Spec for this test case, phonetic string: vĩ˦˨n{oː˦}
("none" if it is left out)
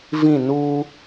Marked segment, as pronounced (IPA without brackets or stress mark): uː˦